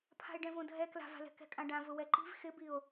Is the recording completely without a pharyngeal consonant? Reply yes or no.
yes